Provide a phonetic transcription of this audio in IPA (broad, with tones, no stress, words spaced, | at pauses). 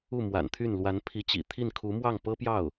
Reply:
u˥˩mwa̰˨˩nt̪ʰy˥˩n lwa˧˥npʰi˧˥t͡ɕḭ˨˩ t̪ʰi˥˩n kʰu˧˥mwɑ˥˩ŋpɤ˥pjɑ˥˩ʊ̯